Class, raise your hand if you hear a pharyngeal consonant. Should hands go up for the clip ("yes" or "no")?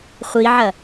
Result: yes